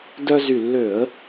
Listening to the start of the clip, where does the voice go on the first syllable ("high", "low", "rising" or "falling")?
high